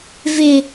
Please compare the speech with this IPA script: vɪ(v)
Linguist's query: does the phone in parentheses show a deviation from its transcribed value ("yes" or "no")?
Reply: yes